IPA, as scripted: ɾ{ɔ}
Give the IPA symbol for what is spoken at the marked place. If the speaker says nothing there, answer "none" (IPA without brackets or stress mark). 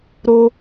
o